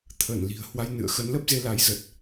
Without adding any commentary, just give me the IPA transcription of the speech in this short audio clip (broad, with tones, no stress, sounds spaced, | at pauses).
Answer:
t̪ʰ əː˧˩ n l i̤˨˩ ə̯ h w a˧ j n ɨ̰˧˨ ə̯ x ə˨˦ n l ə˦˥ p̚ z e˧ l a˨˦ j z ə˨˩ t̚